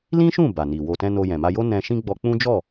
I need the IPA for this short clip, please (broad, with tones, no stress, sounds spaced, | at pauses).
l ĩ˦ ʃ ũ˦˨ b a˨ n i˨ w o˨ t ɛ̃˧ n o˧ j ɛ̃˨ m a˧ j o˦ n ɛ̃˧ ʃ ĩ˦ ɡ͡b ɔ˧ k͡p ũ˦ d͡ʒ ɔ˦˨